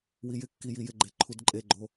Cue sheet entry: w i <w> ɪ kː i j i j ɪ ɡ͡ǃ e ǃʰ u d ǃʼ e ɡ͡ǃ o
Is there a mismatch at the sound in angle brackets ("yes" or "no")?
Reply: yes